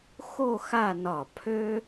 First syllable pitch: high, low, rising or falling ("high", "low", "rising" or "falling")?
falling